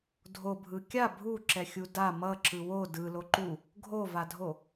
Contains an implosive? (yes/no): no